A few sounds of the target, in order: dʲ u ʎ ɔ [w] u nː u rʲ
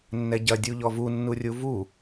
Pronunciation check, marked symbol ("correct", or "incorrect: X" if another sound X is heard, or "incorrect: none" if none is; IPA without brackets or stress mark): incorrect: v